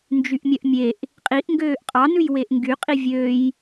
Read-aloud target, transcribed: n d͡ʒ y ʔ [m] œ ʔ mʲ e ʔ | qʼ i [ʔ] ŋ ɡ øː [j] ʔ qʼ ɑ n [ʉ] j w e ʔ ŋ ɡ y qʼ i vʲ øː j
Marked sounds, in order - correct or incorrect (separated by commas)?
incorrect, correct, incorrect, correct